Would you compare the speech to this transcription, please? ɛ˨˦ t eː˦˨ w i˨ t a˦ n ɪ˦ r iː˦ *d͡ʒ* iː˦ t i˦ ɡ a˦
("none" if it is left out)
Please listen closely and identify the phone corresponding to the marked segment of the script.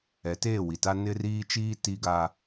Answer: t͡ʃ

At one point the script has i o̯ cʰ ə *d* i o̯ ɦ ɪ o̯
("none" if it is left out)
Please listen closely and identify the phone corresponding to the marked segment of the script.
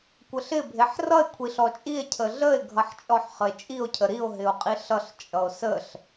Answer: ɾ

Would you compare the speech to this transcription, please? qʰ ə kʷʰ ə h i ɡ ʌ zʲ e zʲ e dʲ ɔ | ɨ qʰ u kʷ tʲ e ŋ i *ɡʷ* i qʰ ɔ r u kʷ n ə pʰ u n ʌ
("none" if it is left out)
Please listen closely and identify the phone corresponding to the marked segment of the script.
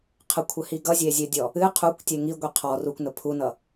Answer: ɡʷ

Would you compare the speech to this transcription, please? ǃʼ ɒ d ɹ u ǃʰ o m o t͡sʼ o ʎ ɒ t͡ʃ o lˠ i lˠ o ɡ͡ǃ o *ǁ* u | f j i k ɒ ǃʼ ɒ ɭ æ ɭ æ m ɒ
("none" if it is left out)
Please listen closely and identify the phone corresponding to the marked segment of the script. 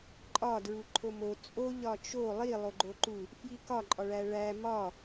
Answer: ǃ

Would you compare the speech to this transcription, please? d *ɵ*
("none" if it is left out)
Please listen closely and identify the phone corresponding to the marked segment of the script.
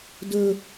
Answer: ɵ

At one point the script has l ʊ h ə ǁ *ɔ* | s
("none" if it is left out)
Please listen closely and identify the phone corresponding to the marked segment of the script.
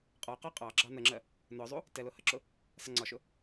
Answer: ʊ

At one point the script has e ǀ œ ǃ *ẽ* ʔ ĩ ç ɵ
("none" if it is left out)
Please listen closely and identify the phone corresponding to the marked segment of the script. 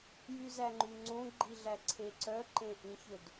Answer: ẽ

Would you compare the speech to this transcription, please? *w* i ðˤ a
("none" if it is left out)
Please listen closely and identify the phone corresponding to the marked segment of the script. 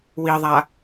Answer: w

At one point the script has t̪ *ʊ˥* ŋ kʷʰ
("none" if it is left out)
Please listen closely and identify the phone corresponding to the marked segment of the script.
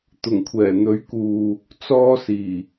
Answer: ʊ˨˩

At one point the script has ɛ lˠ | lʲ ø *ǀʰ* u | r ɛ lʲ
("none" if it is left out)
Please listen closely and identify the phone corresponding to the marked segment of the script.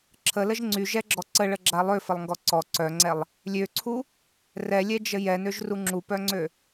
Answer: ǀʰ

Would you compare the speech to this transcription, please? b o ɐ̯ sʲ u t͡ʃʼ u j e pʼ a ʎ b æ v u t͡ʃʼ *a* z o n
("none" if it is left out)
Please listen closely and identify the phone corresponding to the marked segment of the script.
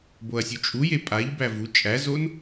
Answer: æ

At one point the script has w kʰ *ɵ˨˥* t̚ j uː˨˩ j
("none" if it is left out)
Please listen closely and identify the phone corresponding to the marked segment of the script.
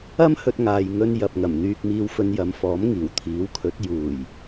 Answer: ɵ˨˥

